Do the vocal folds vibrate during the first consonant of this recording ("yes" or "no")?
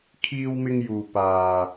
no